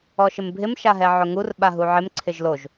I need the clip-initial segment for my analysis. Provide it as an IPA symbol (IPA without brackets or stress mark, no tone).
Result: ɔ